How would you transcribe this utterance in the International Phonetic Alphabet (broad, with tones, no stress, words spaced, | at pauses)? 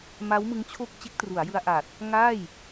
ma˦˥wmɯ˦˥ŋt͡ɕʰo˥˩k̚ t͡ɕe˦˥k̚tru˩˦a̯jɯ˧a̯ʔaː˨˩t̚ | ŋaː˥˩j